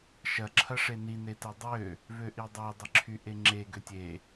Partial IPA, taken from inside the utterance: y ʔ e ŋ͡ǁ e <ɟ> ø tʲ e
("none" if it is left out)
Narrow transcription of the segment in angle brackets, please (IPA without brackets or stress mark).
ɡ